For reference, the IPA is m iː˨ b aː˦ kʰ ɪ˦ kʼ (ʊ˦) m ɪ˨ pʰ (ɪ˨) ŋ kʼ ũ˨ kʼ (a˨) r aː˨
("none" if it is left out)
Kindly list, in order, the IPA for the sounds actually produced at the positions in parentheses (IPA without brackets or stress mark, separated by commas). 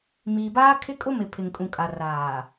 ʊ˦, ɪ˨, a˨